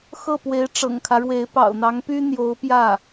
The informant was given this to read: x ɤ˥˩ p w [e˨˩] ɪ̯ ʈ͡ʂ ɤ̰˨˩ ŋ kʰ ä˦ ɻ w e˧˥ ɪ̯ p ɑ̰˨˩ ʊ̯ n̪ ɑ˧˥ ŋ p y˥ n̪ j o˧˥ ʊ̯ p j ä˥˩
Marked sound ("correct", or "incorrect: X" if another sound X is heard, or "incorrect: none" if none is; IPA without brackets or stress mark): incorrect: e˧˥